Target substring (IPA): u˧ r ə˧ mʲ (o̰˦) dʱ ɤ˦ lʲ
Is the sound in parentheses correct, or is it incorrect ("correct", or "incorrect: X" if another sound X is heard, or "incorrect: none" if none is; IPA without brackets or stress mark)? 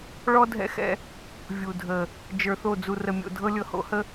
incorrect: o̰˧